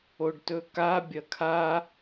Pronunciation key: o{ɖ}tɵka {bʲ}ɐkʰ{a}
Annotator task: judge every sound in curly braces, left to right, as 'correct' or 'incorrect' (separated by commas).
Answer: correct, correct, correct